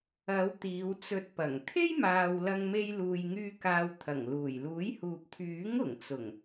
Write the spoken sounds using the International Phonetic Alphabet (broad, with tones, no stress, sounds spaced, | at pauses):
ɐ˨˧ w t̪ iː˨˧ w t͡s ɵ˧ t̚ p ɐ˨˩ ŋ t̪ʰ e˥ j m aː˨ w l ɐ˧ ŋ m e˧ j l uː˨ j ŋ yː˧ k aː˧ w t̪ʰ ɐ˨˩ ŋ l uː˨˩ j l uː˨˥ j h uː˨ p̚ t̪ʰ yː˨˥ ŋ ʊ˨˩ ŋ t͡s ʊ˨˩ ŋ